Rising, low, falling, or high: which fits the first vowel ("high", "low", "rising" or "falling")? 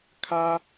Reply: high